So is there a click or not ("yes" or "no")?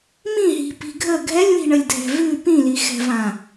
no